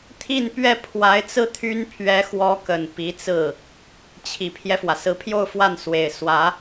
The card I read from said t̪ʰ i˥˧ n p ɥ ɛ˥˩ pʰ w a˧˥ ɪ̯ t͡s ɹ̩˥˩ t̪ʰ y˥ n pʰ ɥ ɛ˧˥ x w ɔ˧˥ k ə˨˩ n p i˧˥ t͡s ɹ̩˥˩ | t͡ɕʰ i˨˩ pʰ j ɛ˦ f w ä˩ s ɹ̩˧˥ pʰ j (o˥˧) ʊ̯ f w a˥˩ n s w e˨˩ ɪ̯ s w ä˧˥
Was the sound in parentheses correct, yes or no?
yes